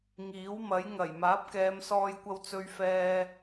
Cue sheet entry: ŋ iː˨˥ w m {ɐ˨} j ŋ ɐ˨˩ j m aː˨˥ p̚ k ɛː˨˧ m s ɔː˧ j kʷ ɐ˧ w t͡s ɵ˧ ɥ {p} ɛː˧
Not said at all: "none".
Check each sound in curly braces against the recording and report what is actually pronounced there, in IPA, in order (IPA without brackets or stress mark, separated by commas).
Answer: ɐ˨˥, f